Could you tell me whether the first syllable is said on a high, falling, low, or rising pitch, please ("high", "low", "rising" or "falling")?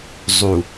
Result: low